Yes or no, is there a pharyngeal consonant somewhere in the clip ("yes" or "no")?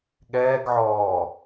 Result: yes